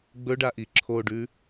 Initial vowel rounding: rounded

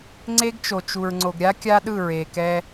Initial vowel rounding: unrounded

